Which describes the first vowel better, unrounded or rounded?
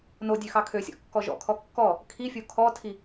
rounded